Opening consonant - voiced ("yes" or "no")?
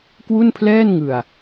no